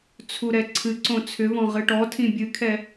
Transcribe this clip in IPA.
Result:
t͡sʰ u ɾ ɛ ǀʰ ɨ ǀ õ t͡sʰ ʏ v ɔ̃ ʁ ɨ ʈ ɔ tʰ ĩ bʲ ɨ kʰ ɛ

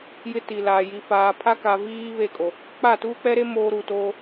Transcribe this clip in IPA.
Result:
j ɪ˦ t i˨ l aː˨ j i˨ f aː˨ pʰ a˦ k a˨ v iː˦ β e˦˨ kʼ o˨ | k͡p a˦˨ t uː˦ k͡p ɛ˦ ɾ e˦ m oː˦ ɾ u˨ t oː˦

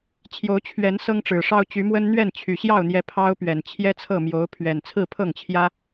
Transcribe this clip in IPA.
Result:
t͡ɕʰ j o˨˦ ʊ̯ t͡ɕʰ ɥ ɛ˨˦ n s ɤ˦ ŋ ʈ͡ʂ ɻ̩˨˩ ʂ ɑ˦ ʊ̯ t͡ɕ y˨˦ m w ə˦ n n̪ ɥ ɛ˥˨ n t͡ɕʰ y˨˩ ɕ j ɑ˥˨ ʊ̯ n̪ j ɛ˨˦ pʰ ɑ˦ ʊ̯ p ɥ ɛ˨˩ n t͡ɕʰ j ɛ˦ t͡sʰ ɤ˥˨ m j o˨˦ ʊ̯ pʰ ɥ ɛ˨˩ n t͡sʰ ɹ̩˥˨ pʰ ɤ˥˨ ŋ t͡ɕʰ j ä˦

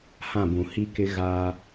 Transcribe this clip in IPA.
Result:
h ã˦˨ b ũ˨ h i˦ k ɪ˦ ɣ aː˦

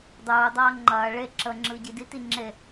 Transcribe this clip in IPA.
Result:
dˤ uː dˤ ɐː ŋ͡ǃ ɐː ɭ e ǁ ə ŋ͡ǁ ɯ ɟ i d i t i ŋ͡ǁ e

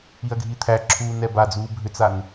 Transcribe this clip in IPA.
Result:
i ɐ̯ ɡʱ i t̪ʰ æ ǁʰ uː n ɛ b a d͡z uː bʱ ʏ t͡s a n

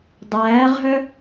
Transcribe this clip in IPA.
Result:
dˤ æː ʁ ɦ œ

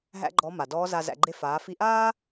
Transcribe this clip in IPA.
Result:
ɦ æ̰˥ ɡ͡ǃ ɔ˧˥ m a˩ d ɔː˧˥ z a˧ z æ̰˧ ɡ͡ǃ e˥ f aː˩˧ f i˧ ʔ aː˥

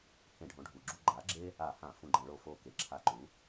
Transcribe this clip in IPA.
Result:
h ẽ˧˩˧ ɖʱ õ˩˥ ɖʱ u˩ ɡ͡ǁ u˧ ɡ͡ǃ a˩˥ ɡ͡ǁ e˥ | a˧˩˧ h ã˧˩˧ f ũ˧˩ ɡ͡ǃ ɐ̃˧˩˧ ɭ o˧˩ f o˧˩ k e˩ ǁʰ a˧˩ ǃ u˩˥

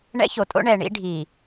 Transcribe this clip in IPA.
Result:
ɳ ɛ̰˦ ç o˨ tʼ o̰˦ ɳ ɛ˨ ɳ ḭ˦ ɖʱ i˨

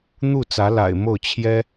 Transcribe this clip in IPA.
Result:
n̪ u˥˩ t͡s ä˧˥ l a̰˨˩ ɪ̯ m o˥˩ ʊ̯ t͡ɕʰ j ɛ˥

